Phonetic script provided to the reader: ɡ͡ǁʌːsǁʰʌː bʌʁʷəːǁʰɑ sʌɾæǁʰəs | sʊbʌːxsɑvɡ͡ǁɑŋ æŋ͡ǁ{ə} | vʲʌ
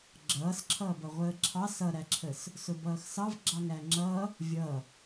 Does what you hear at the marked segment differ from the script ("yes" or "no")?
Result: yes